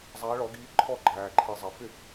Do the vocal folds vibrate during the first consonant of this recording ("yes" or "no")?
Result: yes